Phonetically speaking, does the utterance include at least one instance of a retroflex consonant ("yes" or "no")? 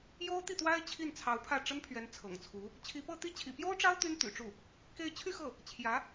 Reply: yes